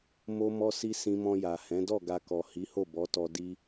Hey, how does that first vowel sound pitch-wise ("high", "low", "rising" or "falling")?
high